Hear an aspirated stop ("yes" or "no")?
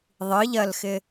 no